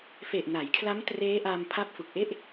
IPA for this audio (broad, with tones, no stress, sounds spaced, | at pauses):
f e˨˩ ʔ n a˩˦ j kʰ l a˦˥ m t r eː˦˥ ʔ a˧ m pʰ a˦˥ p̚ f u˨˩ k̚ ʔ e˥˩ ʔ